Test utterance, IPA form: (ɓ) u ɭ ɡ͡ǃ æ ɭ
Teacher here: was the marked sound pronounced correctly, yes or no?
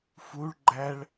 no